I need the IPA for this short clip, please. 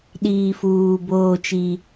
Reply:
ɗ iː˨ f uː˨ b oː˦ t͡ʃ i˦

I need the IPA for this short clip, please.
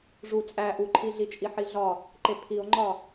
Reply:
ʐ u t͡sʼ æ ʔ u ǃʰ i ɮ i t͡ʃʼ i ħ i ɮ ɒ | ǃ e pʰ i o̯ ŋ͡ǃ ɒ

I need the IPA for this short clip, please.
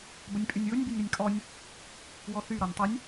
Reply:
b ə nʲ pʼ y nʲ w ʊ nʲ b y nʲ ɾ ɪ nʲ kʼ ɔ nʲ | w ɔ θ y ɾ ɔ nʲ tˤ ɪ nʲ

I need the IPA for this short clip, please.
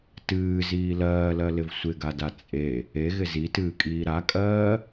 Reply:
t ɨː z iː l ɜː l ɜ l ɪ v sʷ ɪ ɡ a d a t͡sʼ e | e ɣ ɪ z i t ɨː kʼ iː ɾ a kʼ ɜː

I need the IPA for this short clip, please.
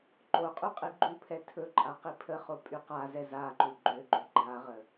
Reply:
ǃ o qʼ y qʼ i ɡ͡ǃ u pʰ ɛ tʰ ɵ ǃʼ a q i pʰ ə χ o pʼ y q a z ɛ z a ǃ u ɡ͡ǃ ø ɡ͡ǃ o ɡ͡ǃ a ʁ ə

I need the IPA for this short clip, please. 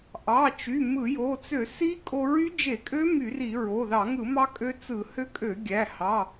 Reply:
ʔ ɑ˩˧˩ t͡ʃ y˩˧˩ m ɯ˧˩˧ j o˩˧˩ t͡s ø˧˩˧ s i˦˥ kʼ o˧ ɹ y˦˥ d͡ʒ e˧˩˧ kʼ ø˦˥ m y˧˩˧ r i˧˩˧ ɹ o˩˧˩ ð ɑ˧˩˧ ŋ ɯ˧˩˧ m ɑ˦˥ kʼ ø˦˥ t͡s ɯ˧˩˧ h ø˦˥ kʼ ø˧˩˧ ɡʲ æ˩˧˩ h ɑ˩˧˩

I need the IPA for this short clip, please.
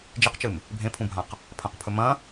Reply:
d͡ʒ i q t͡ʃ ɨ m | bʱ ẽ pʰ ũ bʱ ã q | pʰ ɐ̃ q pʰ ɵ m ɐ̃

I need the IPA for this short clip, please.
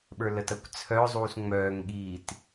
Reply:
ɓ ə˞ l ə t ɐ kʷ t͡sʰ œ zˤ uː s ŋ͡m œː ŋ ɠ i t

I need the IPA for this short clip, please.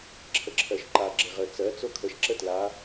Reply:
ǁʰ ə ǁʰ ɜ ʃ ǃ a ɡ͡ǁ e ʁ ə t͡s ɜ t͡s o kʰ ə ʃ ǁ ə t l a

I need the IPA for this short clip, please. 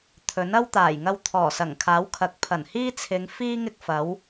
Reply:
t̪ʰ ɵ˨˥ n ɐ˥ w t̪ aː˨˩ j ŋ ɐ˧ w t̪ʰ ɔː˨˩ s ɐ˨˩ ŋ kʰ aː˨˥ w kʰ ɐ˨˥ k̚ pʰ ɐ˨˩ n h iː˥ t͡sʰ ɪ˨˧ ŋ f iː˥ ŋ ɪ˥ k̚ f ɐ˨˥ w

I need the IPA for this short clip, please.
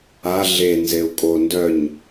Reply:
a ɮ e n z e u̯ kʼ o n d œ ɲ

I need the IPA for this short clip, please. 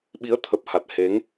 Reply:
ɓ i˨˦ ə̯ t̪ʰ ə˨˩ p̚ h a˨˩ t̚ h e˨˦ ŋ

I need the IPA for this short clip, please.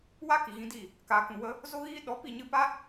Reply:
w a˦ k i˨ ɣ ĩ˧ d i˦˨ | k aː˨ k ũ˨ w ə˧ | z o˦ ɣ iː˦ ɗ ɔ˨˦ p i˦˨ ɲ ɨ˧ p a˦

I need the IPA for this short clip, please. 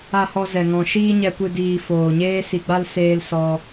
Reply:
a˨ h ɔ˨ z ɛ˨ ŋ ɔ̃˨ ʃ iː˧ ɲ ɛ˨ kʷ ɨ˨ d iː˨ f oː˨ ɲ eː˦ s i˧ ɡ͡b a˦ l s eː˧ l s ɔ˧

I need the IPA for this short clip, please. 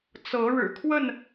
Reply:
t͡s ɤ˨˦ ɻ ɻ̩˨˩ kʰ w ə˥˨ n

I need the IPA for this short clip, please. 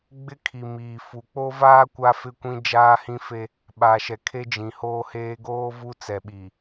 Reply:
ɡ͡b ɪ˦ kʰ i˨ m iː˨ f u˨ k͡p o˦ v aː˦ kʷ a˦ f ɪ˦˨ kʷ ĩ˦ d͡ʒ aː˦ h ĩ˦ f e˦ | ɓ a˨ ʃ ɛ˨ kʰ e˦ d͡ʒ ĩ˨ h oː˦ h eː˦ ɡ oː˦ v u˦ t͡s ɛ˨ ɓ i˨

